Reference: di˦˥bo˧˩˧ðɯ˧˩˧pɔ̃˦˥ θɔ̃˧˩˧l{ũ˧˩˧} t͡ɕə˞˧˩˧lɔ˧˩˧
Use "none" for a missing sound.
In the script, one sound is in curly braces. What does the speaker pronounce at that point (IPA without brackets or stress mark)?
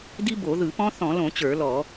õ˧˩˧